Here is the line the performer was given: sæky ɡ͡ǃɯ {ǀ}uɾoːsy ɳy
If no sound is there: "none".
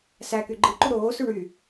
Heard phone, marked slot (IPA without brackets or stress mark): ǃ